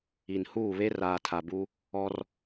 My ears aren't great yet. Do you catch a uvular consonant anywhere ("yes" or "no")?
no